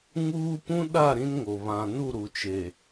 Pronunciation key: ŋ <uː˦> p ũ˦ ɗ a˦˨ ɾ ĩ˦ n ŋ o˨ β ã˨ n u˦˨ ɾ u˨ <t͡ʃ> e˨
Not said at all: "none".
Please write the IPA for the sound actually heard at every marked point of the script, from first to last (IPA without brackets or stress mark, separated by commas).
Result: uː˦, t͡ʃ